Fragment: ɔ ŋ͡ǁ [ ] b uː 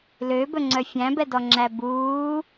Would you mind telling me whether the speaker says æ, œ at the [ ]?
æ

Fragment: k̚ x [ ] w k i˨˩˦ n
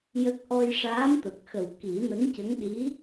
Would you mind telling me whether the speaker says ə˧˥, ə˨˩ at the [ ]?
ə˨˩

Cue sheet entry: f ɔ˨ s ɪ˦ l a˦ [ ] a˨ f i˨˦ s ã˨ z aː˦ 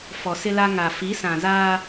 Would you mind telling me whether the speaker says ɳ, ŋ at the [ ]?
ŋ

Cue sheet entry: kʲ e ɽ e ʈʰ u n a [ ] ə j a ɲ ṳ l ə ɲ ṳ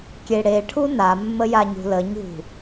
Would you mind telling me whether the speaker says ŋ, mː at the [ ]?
mː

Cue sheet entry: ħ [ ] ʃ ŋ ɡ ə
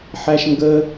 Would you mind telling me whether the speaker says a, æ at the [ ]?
æ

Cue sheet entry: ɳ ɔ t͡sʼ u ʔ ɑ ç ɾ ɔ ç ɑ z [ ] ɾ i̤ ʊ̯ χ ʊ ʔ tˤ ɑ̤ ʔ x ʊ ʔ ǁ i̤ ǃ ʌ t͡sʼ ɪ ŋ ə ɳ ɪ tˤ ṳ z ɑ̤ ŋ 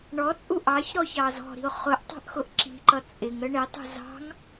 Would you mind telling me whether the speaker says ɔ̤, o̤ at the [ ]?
ɔ̤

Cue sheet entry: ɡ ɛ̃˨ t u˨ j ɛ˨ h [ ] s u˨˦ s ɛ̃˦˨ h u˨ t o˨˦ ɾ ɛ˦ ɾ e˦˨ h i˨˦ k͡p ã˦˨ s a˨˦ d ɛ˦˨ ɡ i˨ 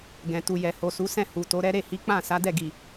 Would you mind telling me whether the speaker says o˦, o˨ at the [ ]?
o˨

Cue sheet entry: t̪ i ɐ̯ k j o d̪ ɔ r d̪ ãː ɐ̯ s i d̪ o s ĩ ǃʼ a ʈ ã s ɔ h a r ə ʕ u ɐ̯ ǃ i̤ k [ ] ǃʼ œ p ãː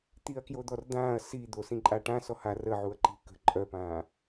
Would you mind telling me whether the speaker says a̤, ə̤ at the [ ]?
ə̤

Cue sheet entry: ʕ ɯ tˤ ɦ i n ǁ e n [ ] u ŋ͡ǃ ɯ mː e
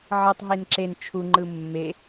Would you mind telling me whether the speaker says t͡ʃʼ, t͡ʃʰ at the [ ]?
t͡ʃʰ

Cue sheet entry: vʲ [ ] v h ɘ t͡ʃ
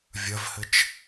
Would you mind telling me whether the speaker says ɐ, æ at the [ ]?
ɐ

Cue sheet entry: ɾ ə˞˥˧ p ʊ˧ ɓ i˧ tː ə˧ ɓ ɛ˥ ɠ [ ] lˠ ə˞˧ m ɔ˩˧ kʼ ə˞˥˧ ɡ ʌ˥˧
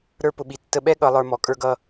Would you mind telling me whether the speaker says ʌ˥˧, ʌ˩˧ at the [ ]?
ʌ˩˧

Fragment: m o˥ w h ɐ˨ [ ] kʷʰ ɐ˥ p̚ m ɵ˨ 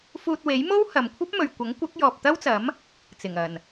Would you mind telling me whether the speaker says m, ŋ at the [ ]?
m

